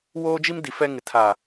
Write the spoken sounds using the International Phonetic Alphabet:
woː˦d͡ʒi˦m di˨fɛ˦ŋɪ˨ tʰa˨

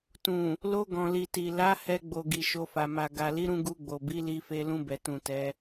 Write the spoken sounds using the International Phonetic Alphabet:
tũ˨ | lo˧ɡɔ̃˨li˨ti˨ la˨˦ hɛ˧ɡ͡bo˨ ɡi˨ʃo˧fa˨ ma˨ ɡa˨ li˨˦ɾũ˧ ɡu˧ɡ͡bo˨bi˨˦ li˧fe˧ lũ˧bɛ˨ tũ˨tɛ˨˦

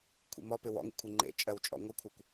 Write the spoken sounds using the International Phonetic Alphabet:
kʷʰḭmɔpɪ wɔ̰ŋḭkʷʰi ŋ͡ǃḛ t͡ʃʼɜwt͡ʃʼɔ̰ ŋʷɪkʷʰɜkʷ

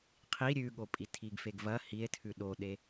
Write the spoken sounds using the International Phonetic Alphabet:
qʰi ɾʲʉɠopʼi tʰiɡfeɡvɐ hie̯tʰʉ ɗoɗe

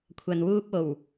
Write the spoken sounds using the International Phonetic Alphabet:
kʷʰɐ˨nwuː˧p̚o˨˩w

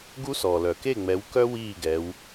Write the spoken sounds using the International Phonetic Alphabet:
ɡu˥sɔ˩lœ˩ ke˥˨ŋ͡mɛ˨˦wkœ˥ wiː˥˨ ɡɛ˨˦w

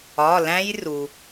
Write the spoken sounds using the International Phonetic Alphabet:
ɒ˩˧˩læ̃˦˥jru˩

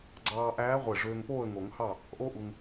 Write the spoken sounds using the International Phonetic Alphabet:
ɡ͡ǀɑː˧ʔæː˧˥ʁʷe˧˩ ʐøː˧ŋpoː˥˨ə̯ŋo˨˩˦ŋhɑ˥˨ | ʔo˥ʔu˧ŋ

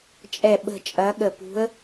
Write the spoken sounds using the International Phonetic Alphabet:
t͡ʃʼɛ˦˨ ɓə̤˦˨t͡ʃʼɐ˧˥ ɠə˦˨ pṳ˧˥ə̯

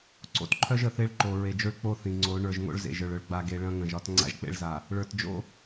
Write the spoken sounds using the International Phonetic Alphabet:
ǀo̰˨tǃʰœ˦ʒ ə˨θe˦ɭ ǃo˨ɹe˨d͡ʒo˦ɭ k͡po˦θĩ˨ŋ͡ǀo˨˦ ɳə˞˨ʒ ŋo̰˦ɭzḛ˨ ʒə˞˨ɭœ˨ɭ ɡ͡ba˨ɡe˨ ɭɐ̃˦ŋə̃˨ʒɒ˦t ŋ͡ǀa̰˦ʒk͡pḛ˦ɭza˨ | ɭə˞˨t d͡ʒo̰˦

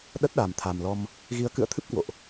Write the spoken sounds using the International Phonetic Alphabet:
ɗə˦˥t̚ɗa˨˩mt̪ʰa˨˩mlɔ˧m | ɣi˨˦ə̯kɨ̰˧˨ə̯t̪ʰɨ˦˥p̚ kwo̰˧˨ʔ

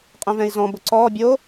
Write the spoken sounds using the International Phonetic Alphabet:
qʼɛ̃vɛ̃i̯zɔ̃ bʊǀɔː bʲo

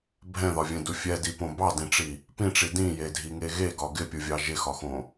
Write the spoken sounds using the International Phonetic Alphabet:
bʱɛ̃ðɒvʲɛ̃du fʲɛdipõ bɑdĩʈ͡ʂi | pĩʈ͡ʂi dĩjedʱiŋe ɣeɡɒ ɡɪpʲuvʲɑ ʒɪxɒxõ

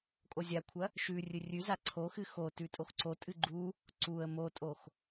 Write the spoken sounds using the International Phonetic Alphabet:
kʼozʲakʷʰɐ | ʃʉ rʲɨrʲʉza ǀʰoxɨ xotʉ tʼoxǀotʼɨ ɡ͡ǃu | ǀuə̯ motʼox

